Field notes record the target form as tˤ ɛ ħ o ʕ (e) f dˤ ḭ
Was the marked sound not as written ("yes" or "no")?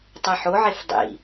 no